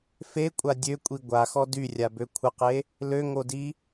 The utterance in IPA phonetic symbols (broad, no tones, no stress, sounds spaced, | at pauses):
f e kʷʼ a dʲ ø kʷʼ i ɡʷ a x ɔ d y rʲ a b ø kʷʰ ə q e | l ø ŋ o d i